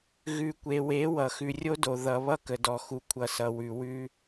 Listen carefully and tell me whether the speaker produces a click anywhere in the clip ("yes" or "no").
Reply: no